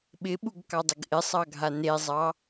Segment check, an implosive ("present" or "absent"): present